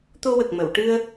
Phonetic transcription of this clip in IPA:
t̪ o˧ w ə˨˩ k̚ m ə˨˩˨ w ʈ ɨ˧ ə̯

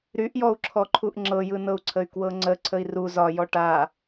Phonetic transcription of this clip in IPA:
ɾ y ʔ j ɔ u̯ ǁʰ ɔ ǃʰ u ʔ ŋ͡ǁ ɤ j ɯ n ɤ u̯ ǀʰ ə y̯ k w ɤ ŋ͡ǀ ə ǀʰ ə i̯ r u z ɒ j ɔ ʈ a

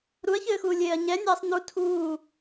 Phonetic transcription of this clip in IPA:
ɾ u ɐ̯ ç ɘː x uː lʲ eː ɐ̯ ɲ ɛ nʲ ɛː sˤ n u tʰ uː

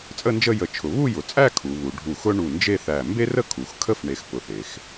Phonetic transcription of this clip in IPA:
t͡sʼ ə˥˧ n d͡ʒ ə˥˧ j ə˧˩ t͡ʃʰ ʊ˩˧ β u˥˧ j ʊ˩˧ t͡sʼ æ˥˧ kʰ u˩˧ β u˩˧ ɖʱ u˧˩ x ʊ˥ ɳ u˧˩ n d͡ʒ e˥˧ θ æ˧˩ m b e˥ r ə˥˧ kʰ u˩˧ x kʰ ə˥˧ f ɳ e˧ x p ʊ˧ θ e˩˧ x

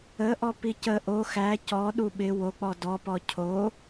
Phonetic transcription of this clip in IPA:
ə ʔ ɔ p i c ə ʔ o x æ c ɔ ɗ u ɓ ɪ w o k͡p ɔ d ɔ p ɔ cʰ o

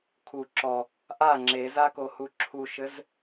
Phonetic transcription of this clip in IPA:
kʰ u ǁ ɔ | ʔ a ŋ͡ǁ e z a k o h u ǁʰ u ʃ ɘ z

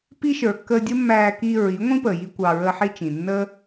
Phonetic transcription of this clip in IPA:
p i˦ ʃ ə˞˨ kː əː˧ dʲ ə˦ mː æː˧ k i˧ ɹ i˨˦ ŋʷ ĩ˦ p əː˨ j i˧ kʷ ɑ˧ ɹ əː˦ ħ i˦ t͡ʃ ĩ˨ nː ə˦

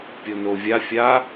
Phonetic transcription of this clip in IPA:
pʲ o n o vʲ a fʲ a

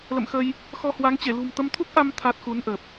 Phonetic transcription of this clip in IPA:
l ə̰˧˨ m x əː˧ j | x ɔ˧ h w a˨˦ ŋ t͡ɕ e˧˩ l ṳ˨˩ m t̪ ə˧ m t̪ʰ u˦˥ k̚ ʔ a˧ m t̪ʰ a˦˥ t̚ x u˨˦ n ʔ əː˨˩ p̚

